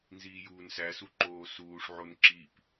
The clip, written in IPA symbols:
n z iː j uː n s æ s u ǃ oː s uː ʂ ʕ o n ǁ i p

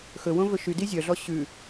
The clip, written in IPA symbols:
x ɵ w õ v ɵ ʃ y d i zʲ œ ɮ ɔ ɕ ʉ

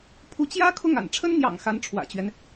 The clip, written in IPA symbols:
pʰ u˧˥ t͡ɕ j ä˥ kʰ ʊ˥˩ ŋ a̰˨˩ n ʈ͡ʂʰ ə˥ n n̪ j ɑ̰˨˩ ŋ x a˧˥ n ʈ͡ʂʰ w ä̰˨˩ t͡ɕ ɥ ɛ˦ n

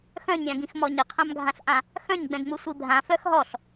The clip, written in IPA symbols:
x œ̃ ɲ ɾʲ ã ɡ ĩ x m ɔ ɲ ə qʰ ã m ɡʱ ã ɬ ʔ ã | x œ̃ ɲ ɡ͡b ɛ̃ ɡ ŋ͡m u sʷ i bʱ ã f œ x ɦ ɔ ɬ

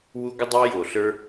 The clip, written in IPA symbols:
w u˦ ɡʷ ɨ˦ dˤ ɛ˦ j o˨ ɬ ə˞˦

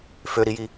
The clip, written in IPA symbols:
f ø ɾ i j i

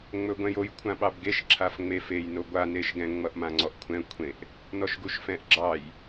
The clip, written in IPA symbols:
ŋ͡m ɵ ɡʷ ɛ̃ j o j kʷʰ ã ɓ ɑ b ɡ e ʃ ǁʰ a f ŋ͡m e f e j n o ɡʷ a n e ʃ ɡ ɛ̃ ŋ͡m ʌ ʔ m ã ŋ͡ǀ ɔ ʔ kʷʰ ɛ̃ kʷʰ ẽ ʔ | n ɔ ʃ ɡ u ʃ f ɛ̃ ʔ ɡ͡ǁ ɑ j

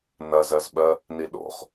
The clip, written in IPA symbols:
n ɐ z ɜ z ɓ ɜ | n i ɗ o̰ χ

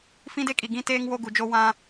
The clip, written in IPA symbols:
f ĩ˦ d e˦ kʼ i˨ ɡ ĩ˦ t eː˦ ŋ w o˦ ɡ u˨ d͡ʒ o˦ w ã˦

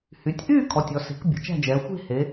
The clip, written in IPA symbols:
h y˩˧ tʲ ʔ yː˥˧ kʰ ɔ˩˧˩ tʲ ɔ˩˧ s e̤˩˥ k bʲ ə̤˩˧ t͡ʃ æ̤˥˧ d͡ʒ ɛː˩˧ xʷ e̤˥˧ h e˩˧

